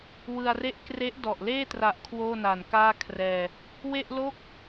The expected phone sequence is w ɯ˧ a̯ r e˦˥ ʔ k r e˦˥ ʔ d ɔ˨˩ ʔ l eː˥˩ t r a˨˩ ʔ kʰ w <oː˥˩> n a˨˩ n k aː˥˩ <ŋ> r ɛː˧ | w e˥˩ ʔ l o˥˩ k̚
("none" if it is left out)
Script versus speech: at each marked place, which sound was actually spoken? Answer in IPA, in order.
oː˥˩, kʰ

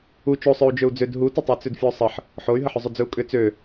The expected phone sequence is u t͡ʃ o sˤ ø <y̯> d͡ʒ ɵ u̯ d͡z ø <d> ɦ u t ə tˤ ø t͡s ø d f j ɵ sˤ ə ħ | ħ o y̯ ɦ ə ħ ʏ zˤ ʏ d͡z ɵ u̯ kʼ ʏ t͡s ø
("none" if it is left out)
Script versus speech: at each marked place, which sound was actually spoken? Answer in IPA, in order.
u̯, d

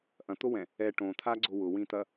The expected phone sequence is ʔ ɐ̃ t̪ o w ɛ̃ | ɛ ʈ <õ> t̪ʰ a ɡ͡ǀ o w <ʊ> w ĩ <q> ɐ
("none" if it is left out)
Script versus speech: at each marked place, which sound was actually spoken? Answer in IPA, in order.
õ, ʊ, t̪

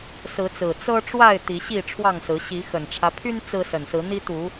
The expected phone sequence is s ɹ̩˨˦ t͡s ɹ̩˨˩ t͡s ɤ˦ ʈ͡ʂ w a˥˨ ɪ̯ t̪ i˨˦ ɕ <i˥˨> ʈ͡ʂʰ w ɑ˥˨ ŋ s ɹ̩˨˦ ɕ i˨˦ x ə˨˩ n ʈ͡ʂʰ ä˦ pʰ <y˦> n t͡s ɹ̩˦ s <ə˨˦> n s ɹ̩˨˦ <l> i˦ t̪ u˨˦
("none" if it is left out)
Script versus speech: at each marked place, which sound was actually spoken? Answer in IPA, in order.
i˥˨, y˦, ə˨˩, n̪

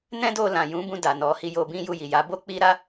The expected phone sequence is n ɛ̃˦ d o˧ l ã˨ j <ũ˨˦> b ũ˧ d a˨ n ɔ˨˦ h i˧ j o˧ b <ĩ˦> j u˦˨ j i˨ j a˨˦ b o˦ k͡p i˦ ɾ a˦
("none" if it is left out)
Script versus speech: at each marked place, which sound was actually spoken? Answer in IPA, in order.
ũ˨˦, ĩ˦

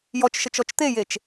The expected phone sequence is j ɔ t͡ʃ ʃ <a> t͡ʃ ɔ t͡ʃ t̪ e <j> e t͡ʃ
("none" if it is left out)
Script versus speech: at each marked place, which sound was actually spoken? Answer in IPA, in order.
ə, j

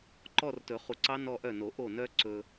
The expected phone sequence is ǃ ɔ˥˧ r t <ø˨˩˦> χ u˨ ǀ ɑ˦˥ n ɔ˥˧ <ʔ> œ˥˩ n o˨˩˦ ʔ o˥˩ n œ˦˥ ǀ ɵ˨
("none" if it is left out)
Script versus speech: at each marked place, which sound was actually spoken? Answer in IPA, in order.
ɵ˨˩˦, ʔ

